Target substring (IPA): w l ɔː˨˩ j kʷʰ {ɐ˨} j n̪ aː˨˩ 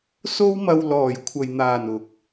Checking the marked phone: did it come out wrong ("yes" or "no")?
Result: no